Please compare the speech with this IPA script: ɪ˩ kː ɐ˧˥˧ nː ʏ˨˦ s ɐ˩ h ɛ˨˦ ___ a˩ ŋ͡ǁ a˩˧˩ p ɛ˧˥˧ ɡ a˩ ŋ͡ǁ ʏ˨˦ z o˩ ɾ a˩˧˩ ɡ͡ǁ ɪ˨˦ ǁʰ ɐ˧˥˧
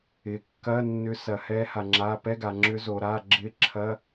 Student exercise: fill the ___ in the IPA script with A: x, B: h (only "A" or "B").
B